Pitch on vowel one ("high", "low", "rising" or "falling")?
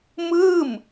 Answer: falling